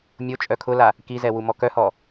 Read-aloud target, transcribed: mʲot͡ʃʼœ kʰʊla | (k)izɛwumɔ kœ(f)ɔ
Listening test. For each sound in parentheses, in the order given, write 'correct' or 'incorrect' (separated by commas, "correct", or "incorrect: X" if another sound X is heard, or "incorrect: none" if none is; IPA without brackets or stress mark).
correct, incorrect: h